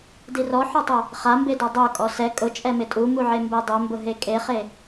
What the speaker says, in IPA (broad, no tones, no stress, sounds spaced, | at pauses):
d i r ɔ ħ ɔ tˤ o | χ a m b e d ɔ dˤ o kʼ ɔ s ɛ kʼ ʊ t͡ʃʼ ɛ m ɪ tʼ u m u ʕ e m b e dˤ o m b ʊ ɦ e kʼ e χ e